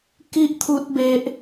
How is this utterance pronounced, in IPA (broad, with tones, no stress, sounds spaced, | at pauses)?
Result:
k i˦ ʔ t̪ʰ u˦ t̚ b e˦ ʔ